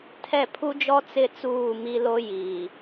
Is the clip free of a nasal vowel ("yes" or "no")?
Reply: yes